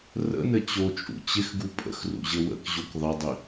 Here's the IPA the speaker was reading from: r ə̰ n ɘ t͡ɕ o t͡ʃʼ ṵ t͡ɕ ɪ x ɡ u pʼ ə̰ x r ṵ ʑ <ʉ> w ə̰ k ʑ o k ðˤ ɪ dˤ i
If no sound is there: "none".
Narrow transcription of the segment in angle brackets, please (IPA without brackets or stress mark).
ɘ